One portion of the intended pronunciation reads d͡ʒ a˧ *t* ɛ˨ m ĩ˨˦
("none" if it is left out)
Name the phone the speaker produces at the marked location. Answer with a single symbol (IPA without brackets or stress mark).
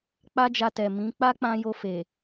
t